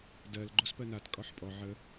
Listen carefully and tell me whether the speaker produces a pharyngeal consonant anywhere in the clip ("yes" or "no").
yes